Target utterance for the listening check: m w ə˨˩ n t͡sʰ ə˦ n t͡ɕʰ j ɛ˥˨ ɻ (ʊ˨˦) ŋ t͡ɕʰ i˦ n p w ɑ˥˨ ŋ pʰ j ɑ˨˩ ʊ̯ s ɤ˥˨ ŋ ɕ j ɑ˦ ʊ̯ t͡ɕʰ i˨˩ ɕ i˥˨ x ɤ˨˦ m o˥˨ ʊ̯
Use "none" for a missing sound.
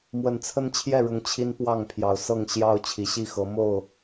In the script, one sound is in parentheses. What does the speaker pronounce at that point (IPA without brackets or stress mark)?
ʊ˨˦